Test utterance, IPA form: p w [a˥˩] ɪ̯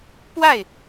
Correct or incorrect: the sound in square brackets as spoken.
correct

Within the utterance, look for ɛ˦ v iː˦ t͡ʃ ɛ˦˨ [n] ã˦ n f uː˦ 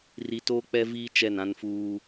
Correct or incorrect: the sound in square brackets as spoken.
correct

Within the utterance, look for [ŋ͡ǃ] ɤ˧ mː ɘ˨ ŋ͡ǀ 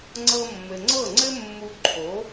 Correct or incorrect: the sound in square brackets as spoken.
incorrect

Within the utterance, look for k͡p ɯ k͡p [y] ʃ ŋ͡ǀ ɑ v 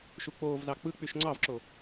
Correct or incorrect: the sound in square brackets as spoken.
correct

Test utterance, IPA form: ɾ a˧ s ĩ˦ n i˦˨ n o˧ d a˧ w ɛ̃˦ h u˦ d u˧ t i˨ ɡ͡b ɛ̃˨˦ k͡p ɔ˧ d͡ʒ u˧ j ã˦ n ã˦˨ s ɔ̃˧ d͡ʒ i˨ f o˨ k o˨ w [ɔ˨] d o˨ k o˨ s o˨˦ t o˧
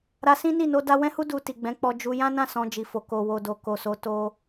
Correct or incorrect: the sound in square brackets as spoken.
incorrect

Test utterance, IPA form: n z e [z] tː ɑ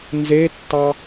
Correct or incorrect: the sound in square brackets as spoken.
incorrect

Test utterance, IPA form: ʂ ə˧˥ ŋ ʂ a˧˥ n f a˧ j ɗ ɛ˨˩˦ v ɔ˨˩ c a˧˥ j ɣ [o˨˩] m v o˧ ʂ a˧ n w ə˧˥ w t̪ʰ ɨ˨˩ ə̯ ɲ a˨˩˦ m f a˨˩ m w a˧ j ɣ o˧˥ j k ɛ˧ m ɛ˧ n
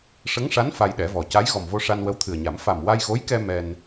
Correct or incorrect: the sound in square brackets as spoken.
incorrect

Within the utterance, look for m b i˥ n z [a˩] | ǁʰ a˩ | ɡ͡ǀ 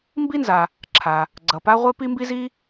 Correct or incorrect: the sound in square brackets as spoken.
correct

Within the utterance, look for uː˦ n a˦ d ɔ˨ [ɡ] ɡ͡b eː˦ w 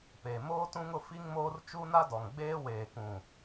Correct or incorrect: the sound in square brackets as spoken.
incorrect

